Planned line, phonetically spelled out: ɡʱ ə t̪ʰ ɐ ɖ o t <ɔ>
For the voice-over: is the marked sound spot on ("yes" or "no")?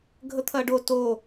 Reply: no